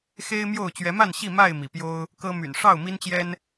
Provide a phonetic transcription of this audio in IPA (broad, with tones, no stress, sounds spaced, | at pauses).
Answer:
x e˦ ɪ̯ m j o˥˨ ʊ̯ t͡ɕ ɥ ɛ˨˦ m a˥˨ n ɕ i˥˨ m a˥˨ ɪ̯ m i˩ p j o˦ ʊ̯ | k ɤ˦ m y̰˨˩ n ʂ ɑ˥˨ ʊ̯ m i˦ n t͡ɕ j ɛ˦ n